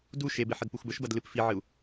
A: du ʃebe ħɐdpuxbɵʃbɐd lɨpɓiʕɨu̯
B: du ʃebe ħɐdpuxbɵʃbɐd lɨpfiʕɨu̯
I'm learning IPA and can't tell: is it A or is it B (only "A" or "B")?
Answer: B